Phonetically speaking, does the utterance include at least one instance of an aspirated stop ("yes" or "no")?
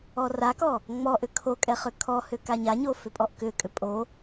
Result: yes